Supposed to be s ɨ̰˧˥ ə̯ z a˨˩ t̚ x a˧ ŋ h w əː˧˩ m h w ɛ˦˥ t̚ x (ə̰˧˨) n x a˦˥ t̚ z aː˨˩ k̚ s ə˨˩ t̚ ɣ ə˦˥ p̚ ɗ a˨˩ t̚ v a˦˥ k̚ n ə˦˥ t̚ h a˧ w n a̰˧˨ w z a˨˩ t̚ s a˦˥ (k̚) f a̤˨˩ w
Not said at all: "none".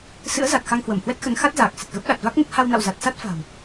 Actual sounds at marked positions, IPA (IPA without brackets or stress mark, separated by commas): ə˨˦, t̚